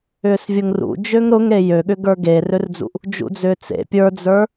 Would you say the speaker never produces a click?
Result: yes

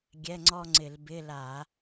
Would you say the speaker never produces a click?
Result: no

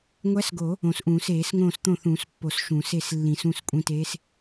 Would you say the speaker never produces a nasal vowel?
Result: no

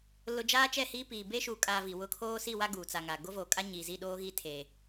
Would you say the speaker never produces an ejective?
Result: no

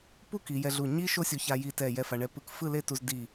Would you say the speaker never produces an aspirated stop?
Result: yes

